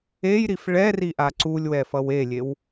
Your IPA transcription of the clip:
e j ɾ i f ɭ ɛ r i ʔ a ǀ u lʲ w ɛ f ʌ w e lʲ e w

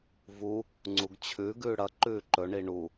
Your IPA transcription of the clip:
v u | ŋ͡ǀ u ɡ t͡ɕʰ ʉ ɡ ʉː ɽ ɐ ǃ ʉː ǃ ɵ ɳ i ɳ u

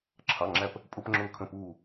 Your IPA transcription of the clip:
ǁʰ ɑ˩˧˩ ŋ͡ǁ æ˧˩ p | pʼ ʊ˧˥˧ p ŋ͡ǁ ʊː˧˩ kʰ ə̃˧˩ p uː˧˩

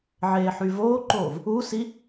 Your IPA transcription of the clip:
ʕ eː ħ y v oː ǃ oː v | u s i

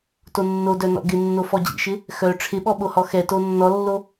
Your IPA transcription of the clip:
t o nː o d œ n ɔ̰ ɡ ɪ nː o f ɔ d͡ʑ ḭ ʃ ɪ | x œ ʈ͡ʂʰ ɪ ɓ ɔ ɓ o h ɔ x ɛ t o nː ɔ lː o

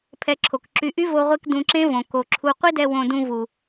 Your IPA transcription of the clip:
pʰ ɛ˧ ǁʰ o˨ k ǁ y˧ ʔ y˦ v o˧ ʁʷ e˧ k d ũ˧ ǁ ẽ˦ v õ˨ k o˨ ǁʰ u˧ qʷ i˦ d ɛ˧ w õ˧ d ũ˧ v u˨

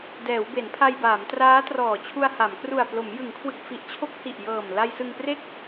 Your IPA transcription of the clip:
d ɛː˩˦ w b e˩˦ n pʰ a˧ j b aː˩˦ m t r aː˦˥ t r ɔː˨˩ t͡ɕʰ u˧ a̯ h a˩˦ m k r u˨˩ a̯ p l o˩˦ m j ɯ˩˦ ŋ kʰ w ɯ˨˩ k̚ f i˨˩ ʔ t͡ɕʰ o˦˥ k̚ h i˨˩ ʔ j ɤː˨˩ m l a˧ j s ɯ˧ ŋ p r e˥˩ k̚

